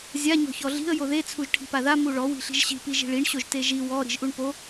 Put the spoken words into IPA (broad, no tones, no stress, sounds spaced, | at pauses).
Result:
zʲ a ɲ ɔ̤ ç ɔ ɮ i̤ ə̯ j o ð e t͡sʰ u ʒ ʈʰ i̤ p a ð a m u ɭ ɔ w i̤ ɬ i̤ ʒ ɕ i̤ p i ʒ i̤ ɭ i ɳ ɕ o ʒ t e ʒ i w ɔ ɾ i̤ ʒ ʔ u ɳ p o